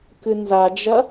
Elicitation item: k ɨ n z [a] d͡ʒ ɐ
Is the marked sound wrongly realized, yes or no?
no